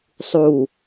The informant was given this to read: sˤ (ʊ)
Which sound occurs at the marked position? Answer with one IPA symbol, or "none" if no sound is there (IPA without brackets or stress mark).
u